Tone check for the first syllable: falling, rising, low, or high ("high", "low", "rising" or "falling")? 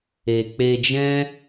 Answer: low